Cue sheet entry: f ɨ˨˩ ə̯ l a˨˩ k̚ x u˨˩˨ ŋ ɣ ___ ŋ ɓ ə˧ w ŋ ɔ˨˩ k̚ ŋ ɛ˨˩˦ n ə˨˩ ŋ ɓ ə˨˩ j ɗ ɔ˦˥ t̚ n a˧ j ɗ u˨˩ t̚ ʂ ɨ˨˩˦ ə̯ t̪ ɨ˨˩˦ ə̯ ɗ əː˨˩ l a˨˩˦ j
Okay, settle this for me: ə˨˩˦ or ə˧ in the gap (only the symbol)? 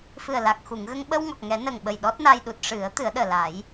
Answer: ə˧